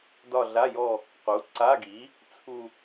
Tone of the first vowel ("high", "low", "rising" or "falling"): falling